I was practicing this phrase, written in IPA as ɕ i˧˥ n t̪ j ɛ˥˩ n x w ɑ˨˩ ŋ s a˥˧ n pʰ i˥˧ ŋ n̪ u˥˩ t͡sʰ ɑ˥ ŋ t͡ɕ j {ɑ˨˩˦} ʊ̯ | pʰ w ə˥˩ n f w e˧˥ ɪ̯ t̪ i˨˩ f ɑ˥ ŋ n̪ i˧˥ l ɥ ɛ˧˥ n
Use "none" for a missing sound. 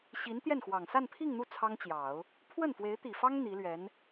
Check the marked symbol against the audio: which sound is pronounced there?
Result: ɑ˨˩˦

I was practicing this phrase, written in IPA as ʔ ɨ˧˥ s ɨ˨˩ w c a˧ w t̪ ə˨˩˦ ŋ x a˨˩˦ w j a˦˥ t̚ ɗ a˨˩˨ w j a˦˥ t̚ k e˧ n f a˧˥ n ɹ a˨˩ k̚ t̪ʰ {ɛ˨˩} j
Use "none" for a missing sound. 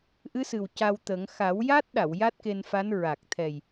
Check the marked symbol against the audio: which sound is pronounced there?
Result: ɛ˨˩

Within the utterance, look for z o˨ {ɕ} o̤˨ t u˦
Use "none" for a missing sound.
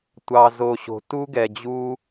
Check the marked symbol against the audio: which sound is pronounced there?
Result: ɕ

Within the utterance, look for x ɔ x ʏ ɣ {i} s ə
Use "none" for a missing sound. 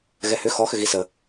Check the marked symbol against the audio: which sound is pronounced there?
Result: i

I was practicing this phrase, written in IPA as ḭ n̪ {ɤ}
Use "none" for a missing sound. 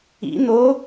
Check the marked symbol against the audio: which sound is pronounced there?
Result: o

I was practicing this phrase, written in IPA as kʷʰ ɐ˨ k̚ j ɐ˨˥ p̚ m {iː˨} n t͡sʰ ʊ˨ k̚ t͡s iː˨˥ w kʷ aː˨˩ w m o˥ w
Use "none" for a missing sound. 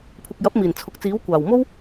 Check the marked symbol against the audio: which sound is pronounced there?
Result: iː˨˩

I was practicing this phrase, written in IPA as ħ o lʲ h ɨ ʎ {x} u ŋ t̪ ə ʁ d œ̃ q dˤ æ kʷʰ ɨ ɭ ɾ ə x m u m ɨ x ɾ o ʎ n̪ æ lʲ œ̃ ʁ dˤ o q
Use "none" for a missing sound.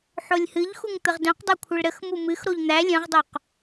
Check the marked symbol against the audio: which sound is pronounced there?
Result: x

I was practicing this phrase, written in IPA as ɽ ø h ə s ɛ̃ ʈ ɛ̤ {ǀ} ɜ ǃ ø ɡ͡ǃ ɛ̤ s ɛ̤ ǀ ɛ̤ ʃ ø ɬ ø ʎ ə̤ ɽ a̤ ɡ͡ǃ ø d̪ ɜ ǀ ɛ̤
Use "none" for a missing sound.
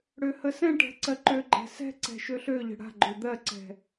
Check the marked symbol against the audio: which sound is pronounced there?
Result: ǀ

